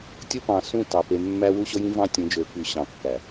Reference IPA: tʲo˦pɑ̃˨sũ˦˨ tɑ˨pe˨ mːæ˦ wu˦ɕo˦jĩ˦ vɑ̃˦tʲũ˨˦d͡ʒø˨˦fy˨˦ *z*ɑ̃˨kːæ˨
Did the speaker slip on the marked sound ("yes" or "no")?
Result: yes